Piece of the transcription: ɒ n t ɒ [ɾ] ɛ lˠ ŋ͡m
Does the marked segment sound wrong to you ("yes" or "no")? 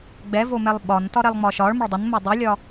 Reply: no